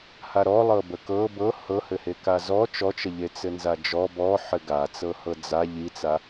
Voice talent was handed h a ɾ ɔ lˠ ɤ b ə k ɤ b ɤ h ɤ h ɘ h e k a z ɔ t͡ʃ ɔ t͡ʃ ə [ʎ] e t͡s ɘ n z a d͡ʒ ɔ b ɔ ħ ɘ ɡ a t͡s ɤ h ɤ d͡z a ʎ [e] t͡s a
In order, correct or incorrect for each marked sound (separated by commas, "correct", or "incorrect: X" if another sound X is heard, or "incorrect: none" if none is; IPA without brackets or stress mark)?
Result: correct, incorrect: i